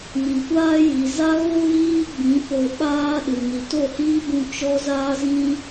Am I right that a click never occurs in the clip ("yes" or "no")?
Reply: yes